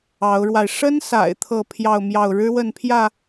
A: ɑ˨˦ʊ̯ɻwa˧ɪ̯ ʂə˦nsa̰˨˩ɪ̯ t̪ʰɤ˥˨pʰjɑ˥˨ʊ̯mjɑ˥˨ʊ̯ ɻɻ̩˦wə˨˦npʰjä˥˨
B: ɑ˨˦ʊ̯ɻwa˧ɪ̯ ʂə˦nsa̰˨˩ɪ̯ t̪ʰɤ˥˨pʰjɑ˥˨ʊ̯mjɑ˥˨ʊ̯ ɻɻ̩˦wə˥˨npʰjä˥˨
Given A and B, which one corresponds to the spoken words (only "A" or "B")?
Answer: B